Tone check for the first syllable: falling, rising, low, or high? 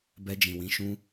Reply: high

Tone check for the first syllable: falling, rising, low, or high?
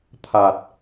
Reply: low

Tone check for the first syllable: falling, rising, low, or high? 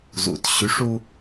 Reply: low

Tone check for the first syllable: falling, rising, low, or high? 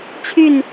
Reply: falling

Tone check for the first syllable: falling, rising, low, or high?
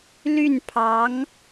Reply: falling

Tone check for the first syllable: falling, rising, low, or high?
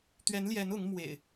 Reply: rising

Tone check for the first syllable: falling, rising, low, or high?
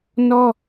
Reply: high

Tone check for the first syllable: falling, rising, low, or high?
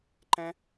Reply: high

